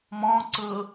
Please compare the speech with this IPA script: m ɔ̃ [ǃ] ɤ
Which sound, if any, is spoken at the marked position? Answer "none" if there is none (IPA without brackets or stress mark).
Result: ǀ